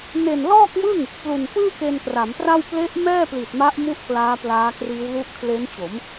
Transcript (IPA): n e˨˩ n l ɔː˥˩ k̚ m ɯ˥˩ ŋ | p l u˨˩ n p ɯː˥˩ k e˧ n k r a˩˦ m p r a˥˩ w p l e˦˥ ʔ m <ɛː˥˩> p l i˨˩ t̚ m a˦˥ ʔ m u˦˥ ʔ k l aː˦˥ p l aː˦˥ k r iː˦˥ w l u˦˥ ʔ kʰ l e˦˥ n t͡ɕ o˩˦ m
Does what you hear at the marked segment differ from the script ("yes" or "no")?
no